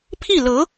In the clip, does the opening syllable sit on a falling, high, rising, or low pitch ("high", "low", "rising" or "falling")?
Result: falling